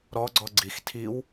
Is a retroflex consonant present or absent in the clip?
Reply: absent